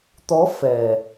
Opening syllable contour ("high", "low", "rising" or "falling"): rising